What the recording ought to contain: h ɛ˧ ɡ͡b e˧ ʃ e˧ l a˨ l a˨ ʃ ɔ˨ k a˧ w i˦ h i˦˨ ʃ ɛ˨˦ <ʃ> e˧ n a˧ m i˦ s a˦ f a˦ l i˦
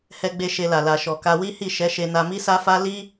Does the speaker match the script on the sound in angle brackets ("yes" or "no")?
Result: yes